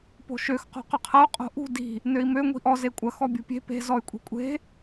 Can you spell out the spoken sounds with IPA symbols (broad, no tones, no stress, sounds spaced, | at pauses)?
p o̤ ʃ ø x q o̤ q ʏ qʰ ɐ u̯ qʼ o̤ ʔ ṳ d i̤ | n ø i̯ m ø ŋʷ i̤ ʔ ɔ z e kʷʼ ɐ x ɔ bʲ ṳ pʲ e̤ p e̤ z ɔ y̯ kʷʼ i̤ kʷʼ e̤